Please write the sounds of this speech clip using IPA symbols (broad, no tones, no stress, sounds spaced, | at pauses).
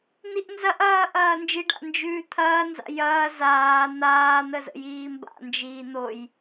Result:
n̪ i ʔ n z ɐ ʔ ɐː ʔ ɐː n d͡ʒ i ɖ a̰ n d͡ʒ ʉː t̪ʰ ɐː n z a̰ j ɐː z aː n̪ aː n̪ ə z ə̰ j iː m b a̰ n d͡ʒ iː n̪ o j